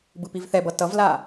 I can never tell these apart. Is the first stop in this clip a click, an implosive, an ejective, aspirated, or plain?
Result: plain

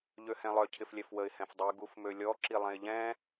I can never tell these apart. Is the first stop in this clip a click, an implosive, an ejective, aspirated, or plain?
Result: aspirated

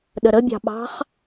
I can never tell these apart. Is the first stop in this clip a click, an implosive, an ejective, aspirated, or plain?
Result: implosive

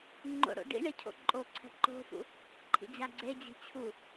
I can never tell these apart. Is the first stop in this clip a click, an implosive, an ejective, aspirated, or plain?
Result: click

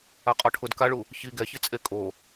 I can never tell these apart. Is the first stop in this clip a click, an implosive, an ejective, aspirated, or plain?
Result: ejective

